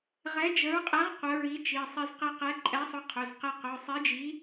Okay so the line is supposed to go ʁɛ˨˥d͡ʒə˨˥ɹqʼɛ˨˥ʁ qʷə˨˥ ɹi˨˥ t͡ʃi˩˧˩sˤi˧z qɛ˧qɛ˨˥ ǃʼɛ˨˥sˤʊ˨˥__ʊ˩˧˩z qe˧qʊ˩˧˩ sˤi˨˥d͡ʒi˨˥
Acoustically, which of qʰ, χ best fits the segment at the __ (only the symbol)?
qʰ